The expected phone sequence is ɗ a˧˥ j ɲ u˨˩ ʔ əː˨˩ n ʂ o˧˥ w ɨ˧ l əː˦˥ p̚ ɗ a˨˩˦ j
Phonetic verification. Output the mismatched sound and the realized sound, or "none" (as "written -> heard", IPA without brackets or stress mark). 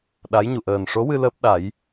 none